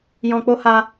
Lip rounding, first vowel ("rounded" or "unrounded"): rounded